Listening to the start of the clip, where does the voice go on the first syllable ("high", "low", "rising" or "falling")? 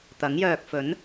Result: rising